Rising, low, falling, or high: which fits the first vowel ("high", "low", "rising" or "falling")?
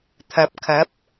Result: low